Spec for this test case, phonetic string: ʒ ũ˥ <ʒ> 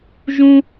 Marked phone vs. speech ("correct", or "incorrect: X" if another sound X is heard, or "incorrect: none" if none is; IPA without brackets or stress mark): incorrect: none